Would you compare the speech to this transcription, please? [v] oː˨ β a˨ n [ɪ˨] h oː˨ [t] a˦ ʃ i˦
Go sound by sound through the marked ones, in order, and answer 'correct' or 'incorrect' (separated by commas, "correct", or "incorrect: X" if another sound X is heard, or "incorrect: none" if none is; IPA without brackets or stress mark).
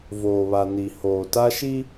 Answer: correct, incorrect: i˨, correct